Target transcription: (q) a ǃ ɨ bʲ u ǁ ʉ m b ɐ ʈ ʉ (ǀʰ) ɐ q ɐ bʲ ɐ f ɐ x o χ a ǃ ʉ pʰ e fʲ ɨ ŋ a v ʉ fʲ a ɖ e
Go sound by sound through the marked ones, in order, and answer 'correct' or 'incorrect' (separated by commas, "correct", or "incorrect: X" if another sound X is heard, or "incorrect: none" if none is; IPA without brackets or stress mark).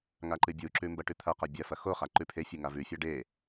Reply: incorrect: ŋ, incorrect: t̪ʰ